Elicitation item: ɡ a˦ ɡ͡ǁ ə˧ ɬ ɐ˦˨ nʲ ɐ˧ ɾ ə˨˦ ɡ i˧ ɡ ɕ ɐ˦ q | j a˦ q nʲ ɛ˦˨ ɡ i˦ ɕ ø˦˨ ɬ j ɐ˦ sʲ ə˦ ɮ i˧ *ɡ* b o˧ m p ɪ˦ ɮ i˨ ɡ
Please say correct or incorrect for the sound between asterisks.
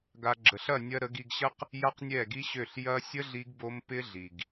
correct